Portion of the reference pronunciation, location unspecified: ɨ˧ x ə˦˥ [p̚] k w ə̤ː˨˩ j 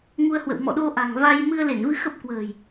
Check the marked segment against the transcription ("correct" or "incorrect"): correct